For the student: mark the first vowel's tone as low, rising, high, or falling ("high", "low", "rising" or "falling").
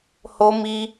high